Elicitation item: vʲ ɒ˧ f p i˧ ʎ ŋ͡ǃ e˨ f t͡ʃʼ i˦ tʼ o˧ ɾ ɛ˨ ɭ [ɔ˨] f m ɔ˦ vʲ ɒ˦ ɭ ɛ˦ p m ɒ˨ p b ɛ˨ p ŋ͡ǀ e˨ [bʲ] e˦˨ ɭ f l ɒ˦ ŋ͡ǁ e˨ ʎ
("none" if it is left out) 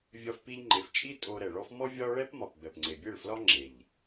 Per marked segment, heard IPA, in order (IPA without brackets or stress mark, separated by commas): ɔ˦, bʲ